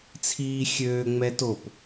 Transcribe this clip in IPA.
t͡sʰ iː xʲ øː ŋ͡m ɛ t o p

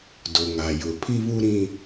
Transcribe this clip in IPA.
d o˨ ŋ a˨ j ʊ˨ pʰ i˦ β u˦ ɾ ĩ˦

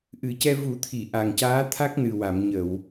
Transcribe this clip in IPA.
ʔ ɨ˨˩˦ c ɛ˧ v u˨˩˦ t̪ʰ i˨˩˨ ʔ a˨˩ ŋ c aː˧˥ t̪ʰ a˦˥ k̚ n ɨ˨˩ w a˨˩˨ m ɲ ə˨˩˨ w

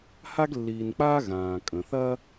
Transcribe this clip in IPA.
h a˥ ɡ lː iː˨ n k͡p aː˥ ɣ ãː˩ kʼ ə̃˩ θ ɐ˦

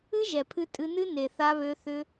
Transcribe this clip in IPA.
ɨ˦ ʒ ɛ˨ pʰ ɨ˧ tʼ ɨ˧ n ɨ˦ n e˨ θ a˧ β ø˧ θ ʏ˦

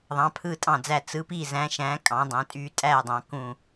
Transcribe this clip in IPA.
ðˤ ɑ̃˩˧ pʰ ɯ˧˩ tʼ ɑ̃˧˩ d͡z æ˧˩ t͡s ɯ˩˧ p i˧˩ z æ̃˩˧ ʃ æ̃˩˧ kʼ ɑ̃˩˧ dˤ æ̃˩˧ tʼ y˧˩ tʼ æ˧˩ dˤ ɑ̃˩˧ k ũ˧˩

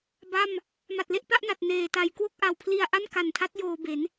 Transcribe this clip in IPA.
b a˥˩ m | m a˨˩ t̚ l e˥˩ ʔ p a˥˩ ʔ n a˨˩ t̚ n eː˨˩ t a˧ j k w o˥˩ k̚ ʔ a˨˩ w pʰ l i˧ a̯ ʔ a˥˩ n k a˨˩ n tʰ a˦˥ t̚ j oː˧ b e˩˦ n

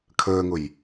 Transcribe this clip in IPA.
kʰ əː ŋ ʊ j

